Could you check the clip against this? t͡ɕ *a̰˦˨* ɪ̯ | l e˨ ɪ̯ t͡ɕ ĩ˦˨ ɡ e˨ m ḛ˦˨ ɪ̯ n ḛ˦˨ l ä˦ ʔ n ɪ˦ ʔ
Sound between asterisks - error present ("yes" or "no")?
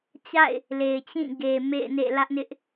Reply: no